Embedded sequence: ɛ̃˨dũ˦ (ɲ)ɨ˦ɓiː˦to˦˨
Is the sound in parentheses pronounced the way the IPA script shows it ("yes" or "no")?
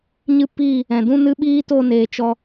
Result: no